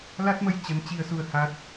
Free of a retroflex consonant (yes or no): yes